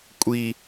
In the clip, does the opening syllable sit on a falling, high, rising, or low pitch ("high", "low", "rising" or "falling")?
high